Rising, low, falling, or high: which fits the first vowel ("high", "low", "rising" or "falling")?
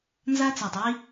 high